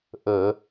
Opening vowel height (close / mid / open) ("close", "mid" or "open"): mid